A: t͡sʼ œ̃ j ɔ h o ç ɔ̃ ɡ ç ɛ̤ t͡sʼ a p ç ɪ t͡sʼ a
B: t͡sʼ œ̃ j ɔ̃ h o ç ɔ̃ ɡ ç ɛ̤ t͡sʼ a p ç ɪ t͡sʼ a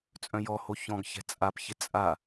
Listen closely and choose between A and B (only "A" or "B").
A